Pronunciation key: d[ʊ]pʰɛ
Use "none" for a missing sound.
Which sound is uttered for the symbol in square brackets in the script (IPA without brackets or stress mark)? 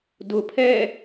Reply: ʊ